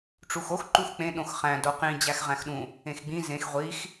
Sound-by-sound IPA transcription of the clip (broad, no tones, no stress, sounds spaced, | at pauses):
ʈ͡ʂ u x o x ǃ u x k͡p ẽ ɗ õ x χ æ̃ d o q ĩ d͡ʑ æ x ʁ æ̃ x ɗ ũ | ẽ x ɡ͡b ĩ z ẽ x ʁʷ i x